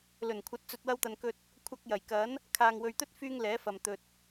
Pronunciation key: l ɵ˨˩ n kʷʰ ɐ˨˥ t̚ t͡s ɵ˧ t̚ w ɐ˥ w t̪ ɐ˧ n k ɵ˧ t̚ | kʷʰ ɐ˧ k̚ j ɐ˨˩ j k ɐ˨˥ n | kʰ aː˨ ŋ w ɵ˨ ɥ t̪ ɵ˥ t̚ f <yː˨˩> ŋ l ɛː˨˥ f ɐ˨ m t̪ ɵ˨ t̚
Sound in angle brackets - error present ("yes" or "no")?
yes